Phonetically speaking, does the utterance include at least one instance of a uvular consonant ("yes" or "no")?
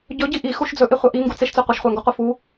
yes